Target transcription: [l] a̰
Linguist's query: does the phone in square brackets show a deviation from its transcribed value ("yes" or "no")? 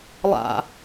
yes